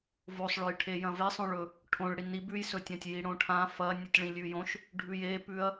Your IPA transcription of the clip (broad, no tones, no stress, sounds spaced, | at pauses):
v o sˤ ɭ ɵ j ʈʰ e j ɐ̃ v e sˤ õ ɭ ɵ | ʈʰ õ ɭ ɽ i n i b ʉ j s ɵ tʲ ã tʲ j i ɽ õ ʈʰ ã f ɐ nʲ ʉ tʲ ɭ ĩ lʲ ʉ j õ ʃ | ɖʱ ʉ j e p ʉ ɐ̯